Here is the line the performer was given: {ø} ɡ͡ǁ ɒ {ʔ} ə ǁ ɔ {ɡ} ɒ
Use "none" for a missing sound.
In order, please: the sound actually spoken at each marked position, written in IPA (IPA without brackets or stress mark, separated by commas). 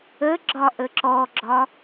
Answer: ə, ʔ, ɡ͡ǁ